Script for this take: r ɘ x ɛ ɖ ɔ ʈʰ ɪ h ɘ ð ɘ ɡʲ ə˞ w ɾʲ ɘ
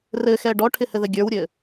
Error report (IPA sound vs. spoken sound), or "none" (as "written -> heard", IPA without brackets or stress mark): none